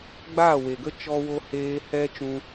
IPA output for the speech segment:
ɡ͡b aː˦˨ w e˨ ɡ ə˦ t͡ʃ ɔ˦ w o˦ h eː˦ h ɛ˦ t͡ʃ ũ˧

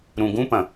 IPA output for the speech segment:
ɾ ũ ɡ ũ p ɐ̃

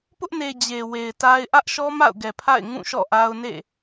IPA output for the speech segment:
p ʊ˦ ʔ n e˨ d͡ʑ e˨ w e˨ ɪ̯ t a˦ ɪ̯ ʔ ä˦ ʔ ʃ ɔ˦ m a̰˦˨ ʊ̯ ɡ ɛ˨ pʰ a̰˦˨ ɪ̯ ŋ ũ˦˨ ʃ ɔ̰˦˨ ʔ a˦ ʊ̯ n ḛ˦˨

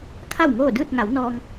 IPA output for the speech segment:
kʰ a˥˨ w ŋ oː˥˨ d ɯː˥˨ t̚ ŋ a˩˧ w n ɔː˧ ŋ

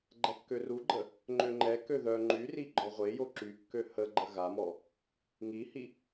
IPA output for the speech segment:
ɡ͡ǃ ɛ kː ø r u ɡ͡ǃ ə | ŋ͡ǃ ø ŋ͡ǃ ɛ k ø ð œ ŋ͡ǃ y r i ɡ͡ǃ ɔ ʁʷ e j o ǁ y kː ø h ə ɡ͡ǃ ə ɣ a m ɔ | ŋ i h i

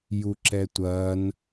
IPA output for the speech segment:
j u ǁ ɛ tʷ ɐː n

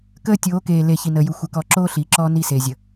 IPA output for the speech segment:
k əː˦ tʲ oː˨˦ k eː˨ l e˨ ç i˨ n əː˨ j u˨ xʷ ɘ˨ k ɔ˨ ǁ oː˦ ɬ iː˨ ǁ ɔː˦ n i˦˨ s eː˨ zʲ ə˨

